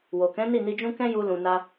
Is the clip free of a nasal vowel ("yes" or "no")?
no